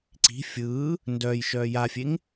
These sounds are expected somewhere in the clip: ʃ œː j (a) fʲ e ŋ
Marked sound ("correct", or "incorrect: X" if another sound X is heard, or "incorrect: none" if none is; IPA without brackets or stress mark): correct